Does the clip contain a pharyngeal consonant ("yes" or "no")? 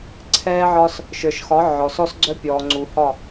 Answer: yes